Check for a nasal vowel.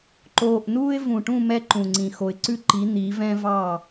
present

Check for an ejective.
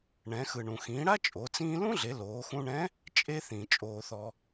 present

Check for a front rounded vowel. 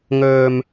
present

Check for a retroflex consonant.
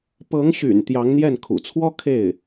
absent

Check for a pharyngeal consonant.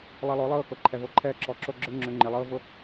absent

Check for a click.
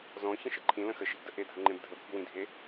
present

